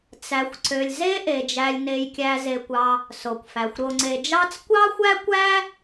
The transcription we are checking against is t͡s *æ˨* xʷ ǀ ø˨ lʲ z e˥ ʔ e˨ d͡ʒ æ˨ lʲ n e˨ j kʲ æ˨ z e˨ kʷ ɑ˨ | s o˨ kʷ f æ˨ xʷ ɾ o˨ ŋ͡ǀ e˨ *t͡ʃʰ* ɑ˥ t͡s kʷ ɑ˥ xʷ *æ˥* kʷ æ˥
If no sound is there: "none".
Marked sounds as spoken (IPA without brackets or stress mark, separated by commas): æ˨, d͡ʒ, æ˥